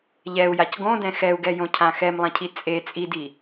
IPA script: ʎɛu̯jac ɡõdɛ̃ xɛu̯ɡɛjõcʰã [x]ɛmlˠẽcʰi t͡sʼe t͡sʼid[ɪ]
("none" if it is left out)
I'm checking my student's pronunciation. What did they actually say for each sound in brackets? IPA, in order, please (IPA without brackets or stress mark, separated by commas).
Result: x, i